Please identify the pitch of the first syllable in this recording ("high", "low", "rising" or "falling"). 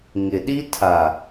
low